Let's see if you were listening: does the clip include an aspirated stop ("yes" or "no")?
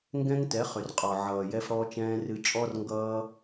no